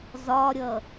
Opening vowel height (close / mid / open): open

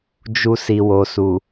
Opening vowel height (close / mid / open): close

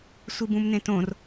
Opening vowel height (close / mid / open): close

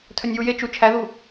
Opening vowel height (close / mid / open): mid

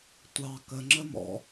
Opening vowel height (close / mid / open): open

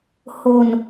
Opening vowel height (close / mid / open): mid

